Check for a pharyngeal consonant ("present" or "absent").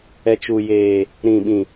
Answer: absent